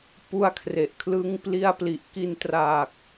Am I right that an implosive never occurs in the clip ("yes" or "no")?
yes